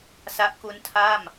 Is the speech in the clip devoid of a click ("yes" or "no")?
yes